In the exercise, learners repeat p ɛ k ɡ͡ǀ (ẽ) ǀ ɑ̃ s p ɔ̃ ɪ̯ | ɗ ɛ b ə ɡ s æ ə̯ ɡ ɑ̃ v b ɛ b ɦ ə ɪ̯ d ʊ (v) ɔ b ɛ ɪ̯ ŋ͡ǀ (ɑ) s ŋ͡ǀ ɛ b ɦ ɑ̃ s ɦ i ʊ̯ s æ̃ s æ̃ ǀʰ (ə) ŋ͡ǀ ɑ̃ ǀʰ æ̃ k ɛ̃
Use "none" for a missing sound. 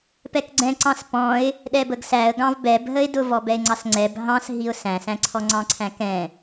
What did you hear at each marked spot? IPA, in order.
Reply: ɛ̃, v, ɑ, ɔ

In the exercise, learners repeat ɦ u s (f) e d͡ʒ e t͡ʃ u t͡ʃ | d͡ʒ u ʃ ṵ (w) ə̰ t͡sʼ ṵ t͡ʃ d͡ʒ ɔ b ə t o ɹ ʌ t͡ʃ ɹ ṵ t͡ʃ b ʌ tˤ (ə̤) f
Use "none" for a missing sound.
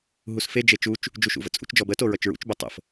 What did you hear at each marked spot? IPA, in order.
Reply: f, v, ə̰

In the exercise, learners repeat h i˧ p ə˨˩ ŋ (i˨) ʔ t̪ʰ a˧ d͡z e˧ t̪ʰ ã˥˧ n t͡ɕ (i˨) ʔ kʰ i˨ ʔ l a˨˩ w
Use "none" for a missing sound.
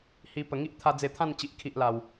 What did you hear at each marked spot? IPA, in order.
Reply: i˦, i˨

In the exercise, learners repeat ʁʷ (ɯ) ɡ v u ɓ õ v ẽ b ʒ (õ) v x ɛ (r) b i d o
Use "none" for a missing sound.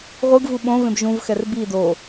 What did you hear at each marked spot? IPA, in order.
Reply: ɯ, ũ, r

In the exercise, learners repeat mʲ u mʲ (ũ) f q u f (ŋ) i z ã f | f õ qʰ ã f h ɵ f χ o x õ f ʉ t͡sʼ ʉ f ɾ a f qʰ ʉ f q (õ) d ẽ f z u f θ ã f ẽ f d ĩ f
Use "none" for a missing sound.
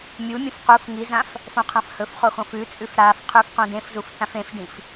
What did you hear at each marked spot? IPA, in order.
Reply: ũ, ŋ, õ

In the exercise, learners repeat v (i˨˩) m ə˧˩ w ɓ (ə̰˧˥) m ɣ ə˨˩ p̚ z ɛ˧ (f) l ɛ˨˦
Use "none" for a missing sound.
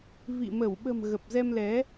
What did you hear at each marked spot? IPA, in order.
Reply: ḭ˧˨, ə̤˨˩, m

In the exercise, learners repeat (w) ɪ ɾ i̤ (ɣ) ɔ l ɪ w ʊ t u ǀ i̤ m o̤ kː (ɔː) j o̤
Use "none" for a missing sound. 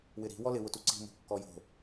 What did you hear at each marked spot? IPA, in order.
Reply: w, w, ɔ

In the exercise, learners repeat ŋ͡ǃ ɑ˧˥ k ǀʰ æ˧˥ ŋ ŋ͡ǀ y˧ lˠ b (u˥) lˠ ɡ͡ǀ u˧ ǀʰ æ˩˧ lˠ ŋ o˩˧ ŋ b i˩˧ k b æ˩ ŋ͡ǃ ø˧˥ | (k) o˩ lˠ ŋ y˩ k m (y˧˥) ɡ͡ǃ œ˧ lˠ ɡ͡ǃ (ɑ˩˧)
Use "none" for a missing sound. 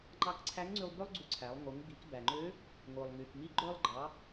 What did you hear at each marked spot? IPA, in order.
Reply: ø˥, ŋ, i˧˥, ɑ˩˧

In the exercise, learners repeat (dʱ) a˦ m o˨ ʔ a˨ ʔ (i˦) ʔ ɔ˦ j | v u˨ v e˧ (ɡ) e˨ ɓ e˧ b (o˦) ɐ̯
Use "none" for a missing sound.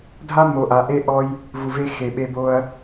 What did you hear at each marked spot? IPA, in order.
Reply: dʱ, e˦, x, o˦

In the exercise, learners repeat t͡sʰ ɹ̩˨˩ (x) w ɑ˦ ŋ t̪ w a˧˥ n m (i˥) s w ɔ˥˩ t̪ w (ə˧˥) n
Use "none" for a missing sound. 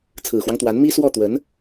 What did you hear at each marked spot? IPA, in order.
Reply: x, i˥, ə˧˥

